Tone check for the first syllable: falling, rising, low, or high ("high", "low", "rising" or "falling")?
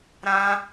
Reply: high